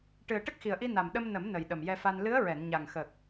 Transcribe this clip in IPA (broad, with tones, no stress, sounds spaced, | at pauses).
ʈ ɨ˨˩ ə̯ ʈ ə˦˥ k̚ x i˨˩ ə̯ ʔ i˧ n a˨˩ m ɗ ə˧ m n ə˨˩˦ m n ə˨˩ j ɗ ə˨˩ m j ɛ˧ f a˧ n l ɨ˧˥ ə̯ ɹ ɛ˨˩˨ n ɲ a˨˩ ŋ x ə˨˩ k̚